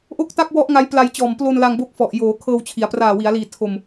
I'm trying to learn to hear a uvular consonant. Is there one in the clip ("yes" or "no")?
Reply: no